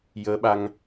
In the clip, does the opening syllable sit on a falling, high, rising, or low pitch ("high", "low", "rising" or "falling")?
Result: rising